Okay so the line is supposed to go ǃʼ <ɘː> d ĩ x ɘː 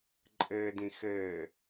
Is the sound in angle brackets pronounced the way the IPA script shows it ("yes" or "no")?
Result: yes